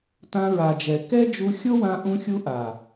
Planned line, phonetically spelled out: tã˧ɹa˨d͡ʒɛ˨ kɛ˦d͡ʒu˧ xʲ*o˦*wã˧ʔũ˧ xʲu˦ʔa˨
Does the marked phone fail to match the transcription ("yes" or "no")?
no